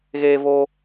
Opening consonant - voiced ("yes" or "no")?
yes